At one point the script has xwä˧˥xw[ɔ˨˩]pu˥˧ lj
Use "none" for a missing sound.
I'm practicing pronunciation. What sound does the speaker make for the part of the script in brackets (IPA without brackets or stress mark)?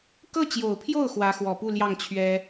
ɔ˨˩